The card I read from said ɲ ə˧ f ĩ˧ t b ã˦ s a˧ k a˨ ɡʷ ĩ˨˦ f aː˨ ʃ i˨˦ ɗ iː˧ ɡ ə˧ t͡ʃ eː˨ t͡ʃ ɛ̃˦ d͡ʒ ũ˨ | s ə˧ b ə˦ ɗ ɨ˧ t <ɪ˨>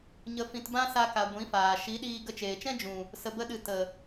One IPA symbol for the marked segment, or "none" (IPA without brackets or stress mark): ə˨